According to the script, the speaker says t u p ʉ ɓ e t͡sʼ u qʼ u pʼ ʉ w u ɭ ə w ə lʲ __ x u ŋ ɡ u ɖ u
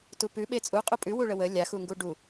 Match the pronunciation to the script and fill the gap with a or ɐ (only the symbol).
a